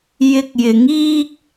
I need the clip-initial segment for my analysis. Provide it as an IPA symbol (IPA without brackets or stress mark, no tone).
j